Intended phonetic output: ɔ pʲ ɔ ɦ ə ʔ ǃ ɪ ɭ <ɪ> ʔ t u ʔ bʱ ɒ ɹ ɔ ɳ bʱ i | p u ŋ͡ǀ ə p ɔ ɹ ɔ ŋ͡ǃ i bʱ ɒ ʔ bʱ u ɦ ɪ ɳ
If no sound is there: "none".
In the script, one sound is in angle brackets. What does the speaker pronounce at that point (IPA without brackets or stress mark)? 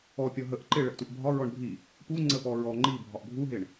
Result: ə